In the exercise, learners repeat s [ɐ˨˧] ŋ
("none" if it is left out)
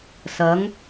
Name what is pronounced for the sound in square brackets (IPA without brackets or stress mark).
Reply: ɐ˨˥